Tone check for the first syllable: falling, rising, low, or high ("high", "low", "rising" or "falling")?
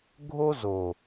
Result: high